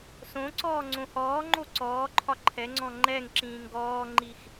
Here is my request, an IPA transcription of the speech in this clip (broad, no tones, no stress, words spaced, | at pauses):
sõǀɔː ŋ͡ǀõhɔːŋ͡ǃo ǀɔːǃʰɒ ǃʰɛŋ͡ǀɔ̃ ŋ͡ǃɛŋǁĩːŋ ɡɔːŋ͡ǃix